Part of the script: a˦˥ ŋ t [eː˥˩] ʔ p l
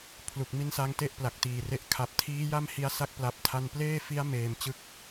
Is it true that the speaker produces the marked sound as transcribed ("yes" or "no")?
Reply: no